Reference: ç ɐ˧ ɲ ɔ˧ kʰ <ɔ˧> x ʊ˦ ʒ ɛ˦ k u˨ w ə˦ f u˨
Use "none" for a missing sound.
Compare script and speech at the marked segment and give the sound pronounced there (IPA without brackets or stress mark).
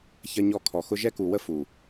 ɔ˨